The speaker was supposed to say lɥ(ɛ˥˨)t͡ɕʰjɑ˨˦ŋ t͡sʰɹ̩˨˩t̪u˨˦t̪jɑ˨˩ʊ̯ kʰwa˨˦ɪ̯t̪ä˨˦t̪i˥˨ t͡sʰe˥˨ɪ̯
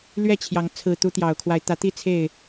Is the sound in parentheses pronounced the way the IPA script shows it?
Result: yes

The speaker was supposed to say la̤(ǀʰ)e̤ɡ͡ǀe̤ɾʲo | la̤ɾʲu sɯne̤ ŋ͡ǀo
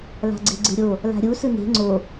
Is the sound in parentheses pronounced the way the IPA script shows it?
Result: no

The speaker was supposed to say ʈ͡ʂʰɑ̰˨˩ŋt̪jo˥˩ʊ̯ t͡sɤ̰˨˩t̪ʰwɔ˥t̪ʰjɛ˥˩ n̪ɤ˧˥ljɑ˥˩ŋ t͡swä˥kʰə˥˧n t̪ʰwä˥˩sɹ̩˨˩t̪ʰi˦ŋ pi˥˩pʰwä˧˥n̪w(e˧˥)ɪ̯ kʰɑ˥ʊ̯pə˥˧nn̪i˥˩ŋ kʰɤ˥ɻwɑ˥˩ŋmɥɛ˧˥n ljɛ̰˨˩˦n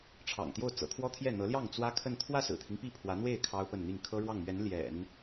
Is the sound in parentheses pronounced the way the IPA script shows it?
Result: no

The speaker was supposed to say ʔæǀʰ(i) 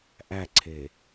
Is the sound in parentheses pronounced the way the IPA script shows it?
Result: no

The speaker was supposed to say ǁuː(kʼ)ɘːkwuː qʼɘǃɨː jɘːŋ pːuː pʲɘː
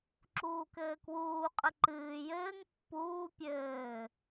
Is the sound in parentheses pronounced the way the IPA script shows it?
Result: no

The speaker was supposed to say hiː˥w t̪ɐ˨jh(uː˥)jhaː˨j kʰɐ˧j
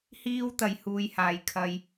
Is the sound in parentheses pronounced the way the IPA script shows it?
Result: no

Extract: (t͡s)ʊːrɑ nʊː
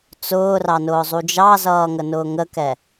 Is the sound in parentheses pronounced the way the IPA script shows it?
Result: yes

